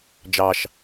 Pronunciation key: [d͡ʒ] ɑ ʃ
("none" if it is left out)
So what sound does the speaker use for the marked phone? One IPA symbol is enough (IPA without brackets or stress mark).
d͡ʒ